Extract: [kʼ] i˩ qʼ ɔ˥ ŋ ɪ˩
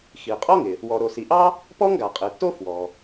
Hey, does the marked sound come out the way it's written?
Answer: no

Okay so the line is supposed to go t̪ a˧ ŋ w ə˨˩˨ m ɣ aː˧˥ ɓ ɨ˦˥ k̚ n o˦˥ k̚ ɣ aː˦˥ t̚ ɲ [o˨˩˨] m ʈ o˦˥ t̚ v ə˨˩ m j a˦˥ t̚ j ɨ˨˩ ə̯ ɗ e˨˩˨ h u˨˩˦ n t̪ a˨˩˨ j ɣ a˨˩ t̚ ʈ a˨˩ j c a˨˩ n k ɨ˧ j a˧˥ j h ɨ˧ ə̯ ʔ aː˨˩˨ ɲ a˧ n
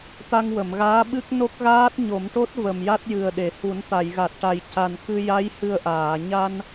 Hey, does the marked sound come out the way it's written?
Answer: no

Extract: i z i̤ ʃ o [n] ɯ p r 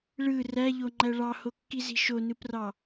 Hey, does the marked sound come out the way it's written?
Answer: yes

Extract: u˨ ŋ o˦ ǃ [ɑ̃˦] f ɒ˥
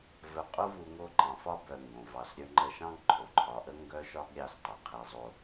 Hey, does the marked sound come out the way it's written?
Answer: no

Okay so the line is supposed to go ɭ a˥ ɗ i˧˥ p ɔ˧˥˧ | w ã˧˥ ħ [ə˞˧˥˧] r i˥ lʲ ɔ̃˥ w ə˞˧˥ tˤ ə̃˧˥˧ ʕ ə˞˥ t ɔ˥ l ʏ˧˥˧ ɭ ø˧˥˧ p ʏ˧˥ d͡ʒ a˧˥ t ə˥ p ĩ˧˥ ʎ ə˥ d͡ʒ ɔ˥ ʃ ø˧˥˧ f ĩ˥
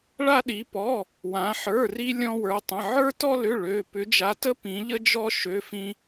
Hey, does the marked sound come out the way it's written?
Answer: yes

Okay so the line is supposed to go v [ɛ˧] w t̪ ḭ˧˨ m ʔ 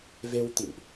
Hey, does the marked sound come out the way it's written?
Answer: no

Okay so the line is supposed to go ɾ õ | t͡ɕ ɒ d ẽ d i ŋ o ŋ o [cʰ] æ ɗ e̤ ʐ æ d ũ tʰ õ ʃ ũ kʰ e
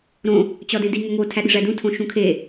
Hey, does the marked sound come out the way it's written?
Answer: no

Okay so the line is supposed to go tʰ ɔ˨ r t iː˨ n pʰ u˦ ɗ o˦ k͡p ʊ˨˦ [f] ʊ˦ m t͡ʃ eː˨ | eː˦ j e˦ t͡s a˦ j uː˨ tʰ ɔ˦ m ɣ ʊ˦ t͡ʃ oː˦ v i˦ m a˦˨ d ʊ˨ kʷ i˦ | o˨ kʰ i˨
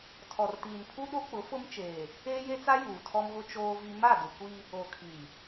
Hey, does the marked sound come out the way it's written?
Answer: yes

